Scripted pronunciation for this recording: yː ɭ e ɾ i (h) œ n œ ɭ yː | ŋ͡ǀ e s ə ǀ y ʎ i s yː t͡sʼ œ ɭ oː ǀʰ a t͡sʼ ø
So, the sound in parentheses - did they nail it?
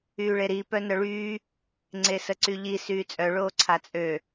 no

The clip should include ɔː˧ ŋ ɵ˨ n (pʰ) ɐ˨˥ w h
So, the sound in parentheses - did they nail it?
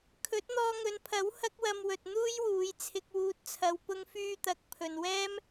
yes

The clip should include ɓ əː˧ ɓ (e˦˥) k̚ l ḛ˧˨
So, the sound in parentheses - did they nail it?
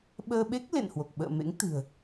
yes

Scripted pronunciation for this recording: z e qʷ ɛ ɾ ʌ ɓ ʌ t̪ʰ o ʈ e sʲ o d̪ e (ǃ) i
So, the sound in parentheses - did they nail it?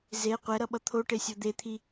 no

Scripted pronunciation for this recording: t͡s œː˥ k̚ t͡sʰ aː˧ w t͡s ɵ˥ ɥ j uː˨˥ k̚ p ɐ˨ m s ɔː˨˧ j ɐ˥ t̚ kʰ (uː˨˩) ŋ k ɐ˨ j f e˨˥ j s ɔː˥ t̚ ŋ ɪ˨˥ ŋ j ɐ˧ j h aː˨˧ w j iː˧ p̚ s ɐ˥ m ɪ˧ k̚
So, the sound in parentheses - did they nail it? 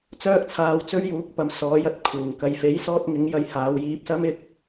yes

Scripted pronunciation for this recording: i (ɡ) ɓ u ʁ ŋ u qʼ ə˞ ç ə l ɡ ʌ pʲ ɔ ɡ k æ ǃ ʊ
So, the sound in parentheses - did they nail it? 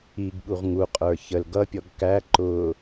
yes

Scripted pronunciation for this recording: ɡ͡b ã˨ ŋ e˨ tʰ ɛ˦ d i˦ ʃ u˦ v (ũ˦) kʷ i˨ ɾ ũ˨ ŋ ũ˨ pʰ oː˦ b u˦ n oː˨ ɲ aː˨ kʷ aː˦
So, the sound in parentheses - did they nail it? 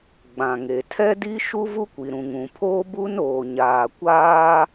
no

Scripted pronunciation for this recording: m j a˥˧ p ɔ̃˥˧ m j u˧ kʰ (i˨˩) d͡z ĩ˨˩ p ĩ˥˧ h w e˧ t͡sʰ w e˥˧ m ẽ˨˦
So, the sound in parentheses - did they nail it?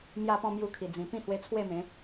yes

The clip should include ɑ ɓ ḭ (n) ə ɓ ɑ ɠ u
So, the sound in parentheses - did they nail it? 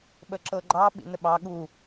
yes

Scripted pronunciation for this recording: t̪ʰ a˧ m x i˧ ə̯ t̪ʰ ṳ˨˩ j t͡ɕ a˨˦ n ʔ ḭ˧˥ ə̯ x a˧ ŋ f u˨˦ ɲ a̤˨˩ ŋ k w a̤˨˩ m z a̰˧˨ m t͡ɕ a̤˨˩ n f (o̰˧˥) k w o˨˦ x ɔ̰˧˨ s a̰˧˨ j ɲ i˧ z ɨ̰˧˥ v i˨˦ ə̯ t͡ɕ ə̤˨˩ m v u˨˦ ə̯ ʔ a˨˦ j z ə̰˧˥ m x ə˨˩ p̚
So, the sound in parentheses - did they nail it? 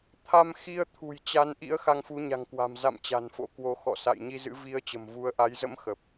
yes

